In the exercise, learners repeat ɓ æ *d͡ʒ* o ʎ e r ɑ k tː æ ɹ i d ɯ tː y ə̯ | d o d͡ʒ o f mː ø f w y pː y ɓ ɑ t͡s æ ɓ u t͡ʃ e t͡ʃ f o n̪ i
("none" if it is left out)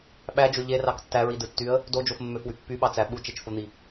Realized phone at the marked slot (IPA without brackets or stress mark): d͡ʒ